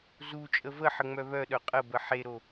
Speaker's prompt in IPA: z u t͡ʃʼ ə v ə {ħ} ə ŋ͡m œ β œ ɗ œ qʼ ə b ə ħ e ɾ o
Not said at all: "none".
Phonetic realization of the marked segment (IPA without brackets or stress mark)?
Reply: ħ